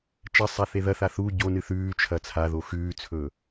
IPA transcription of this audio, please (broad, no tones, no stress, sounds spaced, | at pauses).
t͡ʃ ɐ sˤ a θ e ð ɐ θ a θ u ɟ o n ɨ θ ʉː t͡ʃʰ ɐ t͡sʰ a ð o x ʉː t͡sʰ ɵː